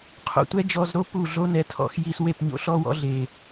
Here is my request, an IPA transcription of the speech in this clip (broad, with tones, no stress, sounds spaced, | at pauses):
qʰ o̰˨ tʷ ɛ˦ d͡ʒ ɔ˧ z ɾ o˦ p u˦˨ ɮ o˦ n ɛ˨˦ tʰ ɔ̰˧ x j i˧ s w e˦˨ p ɲ o̰˧ ɬ ɔ˦ w ɔ̰˦ ɮ e˨